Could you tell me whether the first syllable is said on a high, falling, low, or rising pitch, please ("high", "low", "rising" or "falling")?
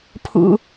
low